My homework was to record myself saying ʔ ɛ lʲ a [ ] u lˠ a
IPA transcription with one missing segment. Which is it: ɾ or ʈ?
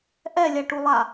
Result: ʈ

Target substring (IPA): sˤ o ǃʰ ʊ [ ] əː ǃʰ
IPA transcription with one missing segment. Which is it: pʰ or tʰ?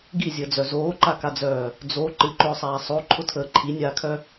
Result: tʰ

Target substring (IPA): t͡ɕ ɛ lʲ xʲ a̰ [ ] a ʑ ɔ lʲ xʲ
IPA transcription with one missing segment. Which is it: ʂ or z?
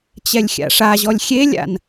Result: ʂ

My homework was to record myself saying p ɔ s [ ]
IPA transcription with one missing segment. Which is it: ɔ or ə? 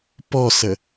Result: ə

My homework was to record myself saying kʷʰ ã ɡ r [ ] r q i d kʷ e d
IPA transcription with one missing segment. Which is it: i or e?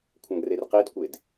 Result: e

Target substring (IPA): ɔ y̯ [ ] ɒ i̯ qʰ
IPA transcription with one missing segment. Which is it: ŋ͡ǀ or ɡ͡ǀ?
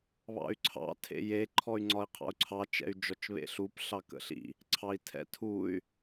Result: ŋ͡ǀ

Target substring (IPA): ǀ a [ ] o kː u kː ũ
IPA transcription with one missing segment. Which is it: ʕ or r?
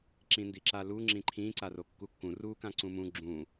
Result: r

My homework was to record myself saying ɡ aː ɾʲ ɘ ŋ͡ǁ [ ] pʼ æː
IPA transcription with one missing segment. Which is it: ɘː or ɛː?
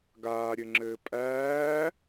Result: ɘː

